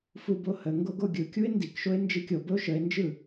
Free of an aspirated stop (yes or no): yes